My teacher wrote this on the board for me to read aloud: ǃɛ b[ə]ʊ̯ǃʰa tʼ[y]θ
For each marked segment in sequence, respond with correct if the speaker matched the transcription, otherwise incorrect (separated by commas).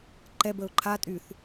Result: correct, correct